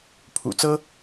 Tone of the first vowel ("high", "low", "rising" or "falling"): low